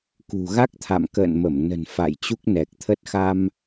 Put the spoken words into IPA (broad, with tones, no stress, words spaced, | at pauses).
kṳ˨˩ɣa˦˥k̚t̪ʰa̰˧˨m kə̰ː˧˨nmə˧˩mnə̤˨˩n fa̰˧˨jt͡ɕu˦˥k̚nɛ˨˩k̚t̪ʰə˦˥t̚ xa˧m